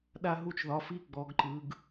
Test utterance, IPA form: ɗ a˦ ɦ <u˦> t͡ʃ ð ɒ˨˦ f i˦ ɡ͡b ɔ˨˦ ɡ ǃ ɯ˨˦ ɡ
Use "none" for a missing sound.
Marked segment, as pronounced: u˦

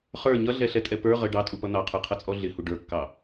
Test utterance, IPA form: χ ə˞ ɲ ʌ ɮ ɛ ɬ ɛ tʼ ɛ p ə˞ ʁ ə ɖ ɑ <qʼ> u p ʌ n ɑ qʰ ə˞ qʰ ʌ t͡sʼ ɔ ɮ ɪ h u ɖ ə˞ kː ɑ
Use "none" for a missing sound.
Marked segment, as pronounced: tʼ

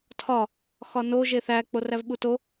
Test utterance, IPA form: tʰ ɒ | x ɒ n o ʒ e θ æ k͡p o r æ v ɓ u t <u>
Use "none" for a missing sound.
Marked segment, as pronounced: o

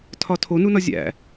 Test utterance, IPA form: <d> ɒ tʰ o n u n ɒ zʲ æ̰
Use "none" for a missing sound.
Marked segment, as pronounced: tʰ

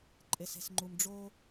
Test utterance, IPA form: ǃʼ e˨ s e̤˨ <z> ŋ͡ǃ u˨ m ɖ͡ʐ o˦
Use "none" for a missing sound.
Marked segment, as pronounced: s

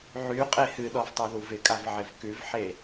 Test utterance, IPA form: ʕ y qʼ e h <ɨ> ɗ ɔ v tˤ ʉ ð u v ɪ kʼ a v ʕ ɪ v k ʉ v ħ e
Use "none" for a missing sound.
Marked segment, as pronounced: ɨ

